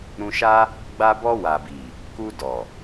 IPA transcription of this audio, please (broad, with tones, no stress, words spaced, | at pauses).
ɾũ˧ʃa˦ | ɡ͡ba˧bɔ˧wa˨bi˨ | ku˧dɔ˨